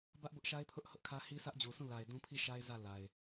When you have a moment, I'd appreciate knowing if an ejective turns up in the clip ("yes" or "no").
no